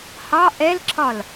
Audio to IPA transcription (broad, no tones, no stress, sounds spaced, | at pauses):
h ɑ ʔ ɛ l ǁ ɒ l